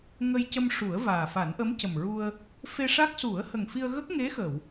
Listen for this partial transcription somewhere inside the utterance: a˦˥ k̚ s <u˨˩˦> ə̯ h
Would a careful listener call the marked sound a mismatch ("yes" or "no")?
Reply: no